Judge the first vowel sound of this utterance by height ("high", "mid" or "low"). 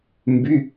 high